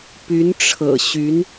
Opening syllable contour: rising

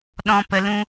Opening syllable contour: high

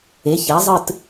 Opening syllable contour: rising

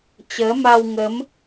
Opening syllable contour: rising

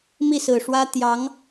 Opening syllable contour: falling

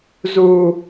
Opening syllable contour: low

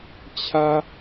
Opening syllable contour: low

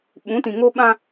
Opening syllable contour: rising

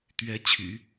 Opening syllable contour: rising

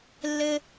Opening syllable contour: high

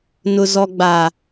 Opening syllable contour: low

